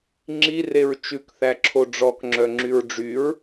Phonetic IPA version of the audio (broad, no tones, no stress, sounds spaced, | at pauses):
ŋ͡ǁ i r e ɹ t͡ʃ ʉ k θ æ ǁʰ o ɖ͡ʐ ɔ k ŋ͡ǁ œ ŋ͡ǁ y ɹ ɖ͡ʐ y ɹ